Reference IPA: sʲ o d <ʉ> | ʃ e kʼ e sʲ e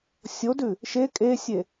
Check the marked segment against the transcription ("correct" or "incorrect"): correct